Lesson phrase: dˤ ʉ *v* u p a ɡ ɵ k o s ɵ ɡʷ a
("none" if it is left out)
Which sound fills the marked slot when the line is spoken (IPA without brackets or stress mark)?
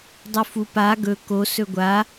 f